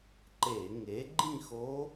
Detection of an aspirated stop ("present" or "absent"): absent